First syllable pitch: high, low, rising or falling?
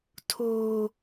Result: high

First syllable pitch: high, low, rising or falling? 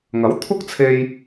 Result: rising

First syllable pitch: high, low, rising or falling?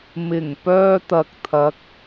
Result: low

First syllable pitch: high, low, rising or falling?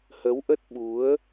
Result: rising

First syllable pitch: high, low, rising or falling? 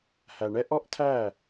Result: low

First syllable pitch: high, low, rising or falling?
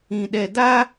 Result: low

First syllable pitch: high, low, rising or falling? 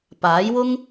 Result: rising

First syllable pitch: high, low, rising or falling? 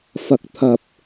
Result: low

